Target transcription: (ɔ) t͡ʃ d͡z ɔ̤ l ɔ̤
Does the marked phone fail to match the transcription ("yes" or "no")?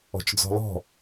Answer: yes